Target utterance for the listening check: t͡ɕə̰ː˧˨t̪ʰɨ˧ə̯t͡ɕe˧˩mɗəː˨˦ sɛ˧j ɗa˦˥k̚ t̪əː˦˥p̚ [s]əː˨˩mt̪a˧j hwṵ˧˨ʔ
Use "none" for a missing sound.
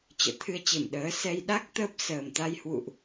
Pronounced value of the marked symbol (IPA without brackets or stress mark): s